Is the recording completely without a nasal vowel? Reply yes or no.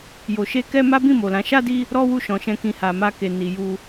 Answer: no